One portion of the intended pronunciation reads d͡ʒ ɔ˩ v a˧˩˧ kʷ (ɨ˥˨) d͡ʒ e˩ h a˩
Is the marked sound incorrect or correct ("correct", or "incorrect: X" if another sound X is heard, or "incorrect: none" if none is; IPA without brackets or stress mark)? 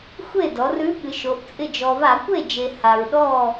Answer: incorrect: e˥˨